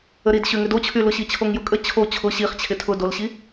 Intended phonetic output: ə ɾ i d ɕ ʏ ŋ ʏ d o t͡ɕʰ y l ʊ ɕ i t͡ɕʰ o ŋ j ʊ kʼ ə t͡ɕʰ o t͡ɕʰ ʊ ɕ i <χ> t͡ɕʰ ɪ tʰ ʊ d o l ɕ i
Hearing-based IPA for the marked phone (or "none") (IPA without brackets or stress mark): χ